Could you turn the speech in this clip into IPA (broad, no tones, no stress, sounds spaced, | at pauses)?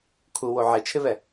kʰ u w o ʕ e t͡ʃʰ ɪ β ɛ